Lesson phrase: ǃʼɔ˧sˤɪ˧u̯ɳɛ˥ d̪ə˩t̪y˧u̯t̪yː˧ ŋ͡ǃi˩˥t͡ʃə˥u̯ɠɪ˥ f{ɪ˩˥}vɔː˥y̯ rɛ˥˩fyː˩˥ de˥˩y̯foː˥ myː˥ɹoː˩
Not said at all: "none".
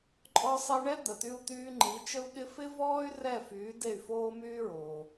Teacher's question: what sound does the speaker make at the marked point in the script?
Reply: ɪ˥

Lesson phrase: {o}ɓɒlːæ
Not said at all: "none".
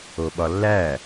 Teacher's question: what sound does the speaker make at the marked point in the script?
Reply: o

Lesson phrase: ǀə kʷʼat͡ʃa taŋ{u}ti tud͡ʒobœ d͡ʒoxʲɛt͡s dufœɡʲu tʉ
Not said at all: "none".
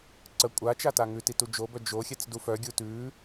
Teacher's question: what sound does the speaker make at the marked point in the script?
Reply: ʉ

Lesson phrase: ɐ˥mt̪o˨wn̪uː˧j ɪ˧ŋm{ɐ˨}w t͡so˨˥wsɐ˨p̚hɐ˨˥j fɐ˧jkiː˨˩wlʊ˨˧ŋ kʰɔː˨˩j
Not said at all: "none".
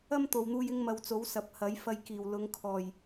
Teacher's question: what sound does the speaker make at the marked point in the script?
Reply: ɐ˨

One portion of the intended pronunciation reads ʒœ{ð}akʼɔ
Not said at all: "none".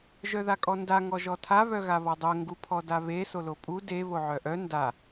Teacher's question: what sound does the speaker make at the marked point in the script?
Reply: ð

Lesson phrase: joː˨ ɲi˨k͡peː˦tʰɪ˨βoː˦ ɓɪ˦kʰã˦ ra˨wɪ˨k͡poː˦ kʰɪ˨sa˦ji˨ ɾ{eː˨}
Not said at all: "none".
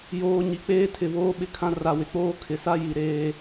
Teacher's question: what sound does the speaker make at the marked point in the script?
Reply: eː˦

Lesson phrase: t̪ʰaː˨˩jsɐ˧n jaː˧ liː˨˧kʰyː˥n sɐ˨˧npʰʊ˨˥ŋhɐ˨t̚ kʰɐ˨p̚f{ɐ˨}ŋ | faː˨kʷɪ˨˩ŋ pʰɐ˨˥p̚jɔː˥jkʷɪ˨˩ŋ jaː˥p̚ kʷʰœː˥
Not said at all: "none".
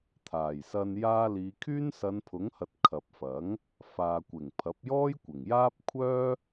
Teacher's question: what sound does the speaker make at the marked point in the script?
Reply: ɐ˨˥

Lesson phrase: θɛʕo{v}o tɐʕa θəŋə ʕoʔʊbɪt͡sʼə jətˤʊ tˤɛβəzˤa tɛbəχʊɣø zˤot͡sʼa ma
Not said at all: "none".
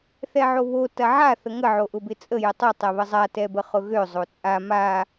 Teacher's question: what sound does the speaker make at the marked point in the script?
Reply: β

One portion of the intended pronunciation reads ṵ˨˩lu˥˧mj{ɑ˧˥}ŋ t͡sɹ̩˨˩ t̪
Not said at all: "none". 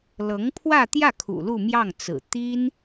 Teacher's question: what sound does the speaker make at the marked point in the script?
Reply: ɑ˥˩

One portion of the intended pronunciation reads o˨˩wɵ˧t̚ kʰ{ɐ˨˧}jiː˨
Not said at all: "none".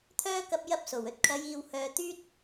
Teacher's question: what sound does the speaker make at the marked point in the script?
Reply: ɐ˨˧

